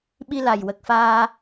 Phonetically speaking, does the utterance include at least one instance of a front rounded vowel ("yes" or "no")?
no